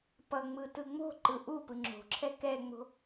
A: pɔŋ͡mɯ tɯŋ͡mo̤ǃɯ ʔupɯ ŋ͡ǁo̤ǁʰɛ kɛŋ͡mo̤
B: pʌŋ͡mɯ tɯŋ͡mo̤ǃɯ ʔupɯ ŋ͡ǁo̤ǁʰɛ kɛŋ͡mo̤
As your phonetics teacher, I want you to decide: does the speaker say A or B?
B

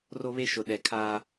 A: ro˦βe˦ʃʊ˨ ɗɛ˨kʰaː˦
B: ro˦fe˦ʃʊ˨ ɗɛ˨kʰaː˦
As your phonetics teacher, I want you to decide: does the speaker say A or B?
A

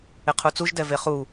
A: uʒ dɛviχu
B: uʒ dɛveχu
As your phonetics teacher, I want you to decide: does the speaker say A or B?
B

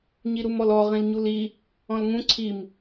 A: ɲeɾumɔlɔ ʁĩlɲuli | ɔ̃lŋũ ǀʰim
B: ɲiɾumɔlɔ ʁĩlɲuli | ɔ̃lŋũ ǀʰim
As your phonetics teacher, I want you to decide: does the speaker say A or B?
B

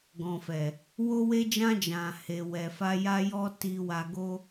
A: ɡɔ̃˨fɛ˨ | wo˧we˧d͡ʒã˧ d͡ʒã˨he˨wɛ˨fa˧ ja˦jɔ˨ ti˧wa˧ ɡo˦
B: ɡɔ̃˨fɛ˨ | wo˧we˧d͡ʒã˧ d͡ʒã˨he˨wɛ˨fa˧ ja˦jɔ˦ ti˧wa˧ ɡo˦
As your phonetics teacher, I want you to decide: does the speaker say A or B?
B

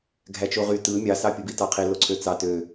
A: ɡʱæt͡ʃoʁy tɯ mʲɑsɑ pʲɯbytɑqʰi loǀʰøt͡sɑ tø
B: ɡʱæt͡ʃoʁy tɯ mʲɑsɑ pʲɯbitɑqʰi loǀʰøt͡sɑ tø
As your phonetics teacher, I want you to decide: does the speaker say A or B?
B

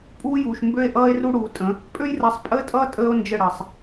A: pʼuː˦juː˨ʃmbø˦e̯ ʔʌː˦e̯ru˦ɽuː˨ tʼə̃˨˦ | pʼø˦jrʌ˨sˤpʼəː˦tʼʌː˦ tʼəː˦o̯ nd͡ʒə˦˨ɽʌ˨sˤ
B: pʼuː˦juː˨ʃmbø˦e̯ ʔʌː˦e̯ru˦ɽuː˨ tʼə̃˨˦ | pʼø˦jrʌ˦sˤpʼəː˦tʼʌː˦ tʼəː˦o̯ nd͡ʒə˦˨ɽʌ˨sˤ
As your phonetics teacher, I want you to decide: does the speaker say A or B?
A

